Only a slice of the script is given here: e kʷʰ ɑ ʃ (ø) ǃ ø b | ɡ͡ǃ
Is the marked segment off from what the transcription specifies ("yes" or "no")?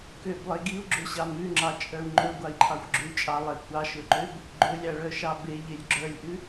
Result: yes